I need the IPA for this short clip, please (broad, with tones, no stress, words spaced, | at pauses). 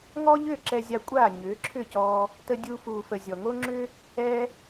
ŋɔ˦ʎʏː˦˨ ǁɛ˧zʲa˧kʷʼaː˦˨ ɲʏː˨˦ǁʰʏ˦˨cɔː˧ | tə˧dʲuː˧fuː˨fə˨ zʲɔ˨ŋo˦ŋ͡ǁʏː˦ | ɛː˦